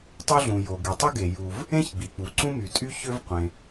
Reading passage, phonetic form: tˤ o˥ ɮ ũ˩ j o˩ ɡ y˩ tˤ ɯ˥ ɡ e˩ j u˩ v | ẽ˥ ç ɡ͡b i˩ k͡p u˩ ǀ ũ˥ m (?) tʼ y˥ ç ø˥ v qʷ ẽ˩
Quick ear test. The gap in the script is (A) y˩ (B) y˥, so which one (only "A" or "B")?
A